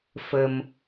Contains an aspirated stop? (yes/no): no